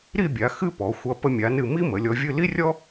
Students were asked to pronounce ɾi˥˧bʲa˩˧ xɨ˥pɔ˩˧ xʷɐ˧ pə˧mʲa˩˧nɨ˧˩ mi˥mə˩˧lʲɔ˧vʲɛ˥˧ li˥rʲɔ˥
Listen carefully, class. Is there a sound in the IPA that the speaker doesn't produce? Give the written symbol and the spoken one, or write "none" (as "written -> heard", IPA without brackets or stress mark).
ɛ˥˧ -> ɨ˥˧